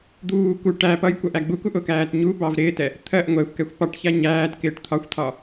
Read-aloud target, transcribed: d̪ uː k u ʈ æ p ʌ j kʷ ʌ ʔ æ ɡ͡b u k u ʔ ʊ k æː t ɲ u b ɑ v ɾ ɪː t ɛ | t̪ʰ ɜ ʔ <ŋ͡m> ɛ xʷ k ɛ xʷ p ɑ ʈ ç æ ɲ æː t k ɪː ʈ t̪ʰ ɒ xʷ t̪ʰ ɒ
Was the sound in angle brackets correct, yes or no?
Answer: no